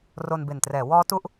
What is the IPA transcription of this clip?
ro˧nbe˨˩ntrɛː˩˦ wɔː˦˥ tu˦˥ʔ

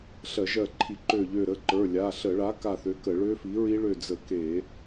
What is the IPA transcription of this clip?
ɬɜ˧˩˧ʒɜ˧˩ǃʰi˧˩˧ǃø˧˩ ʎø˧˩ɾə˩˧˩ǃə˞˩˧˩ lʲa˩˧˩ ɬə˧˩˧ɭa˩˥ ka˧˩θø˩˥ kə˧˩˧ɭø˦˥fi˩˥ɹi˦˥ ɭø˧˩d͡zə˧˩˧ke˧˩˧

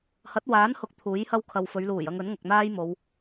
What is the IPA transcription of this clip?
hɐ˨˥t̚waː˨˥nhʊ˨k̚ t̪ʰuː˨˥jhɐ˥w kʰɐ˨wfɵ˨˧ɥluː˨˩jɐ˧ŋ ɵ˨˥nŋɐ˨k̚n̪aː˥j mo˨˧w

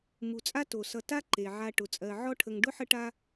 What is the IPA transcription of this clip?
mu˩t͡sʼa˥ to˩sʌ˨ta˥ ǃe˩ʕa˨ʈʊ˩ t͡sʼɜ˩ʕɔ˥ʈʰə˨ŋ ɖʊ˥ħə˦ʈa˦

